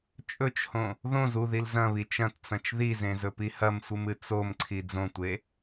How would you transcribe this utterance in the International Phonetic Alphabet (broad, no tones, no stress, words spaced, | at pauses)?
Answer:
t͡ʃʼɵt͡ʃhõ | ðõz uðil zɐ̃βi t͡ʃɐ̃tt͡sɐ̃t͡ʃ ðizẽzɵpi hɐmsʷɨmɨ t͡somǀʰi d͡zõtʷe